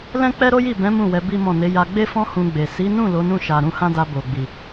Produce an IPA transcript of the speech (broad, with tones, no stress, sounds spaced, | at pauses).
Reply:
l ɛ̃˦ k͡p ɛ˦ ɾ o˦ j i˦˨ b ɛ̃˨˦ m ũ˦˨ w ɛ˨˦ b i˦ m ɔ̃˦˨ n e˨˦ j a˧ ɡ͡b e˦ f ɔ̃˦ h ũ˧ ɡ͡b e˨ s i˨˦ n ũ˦˨ l o˨˦ n ũ˦˨ ʃ a˨ ɾ ũ˧ h ã˦ d a˧ b o˨ ɡ͡b i˨